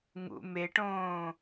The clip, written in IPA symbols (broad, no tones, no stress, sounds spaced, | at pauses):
ŋ ṵ m e ʈ õː